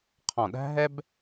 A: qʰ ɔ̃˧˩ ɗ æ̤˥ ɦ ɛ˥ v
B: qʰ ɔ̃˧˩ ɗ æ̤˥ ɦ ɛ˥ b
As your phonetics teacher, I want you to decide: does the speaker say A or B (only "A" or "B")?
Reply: B